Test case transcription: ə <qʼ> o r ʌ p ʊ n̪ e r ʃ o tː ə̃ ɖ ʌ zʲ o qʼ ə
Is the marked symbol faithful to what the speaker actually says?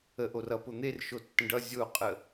no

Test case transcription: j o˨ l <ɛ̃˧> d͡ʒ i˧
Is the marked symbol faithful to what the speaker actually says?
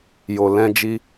yes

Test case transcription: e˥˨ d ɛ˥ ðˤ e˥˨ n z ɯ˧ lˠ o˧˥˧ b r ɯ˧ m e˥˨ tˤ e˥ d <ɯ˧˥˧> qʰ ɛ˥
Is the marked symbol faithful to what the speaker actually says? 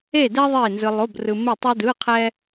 yes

